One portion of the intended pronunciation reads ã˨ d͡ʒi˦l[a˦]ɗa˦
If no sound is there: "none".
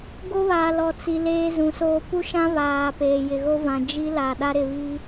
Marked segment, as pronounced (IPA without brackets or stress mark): a˨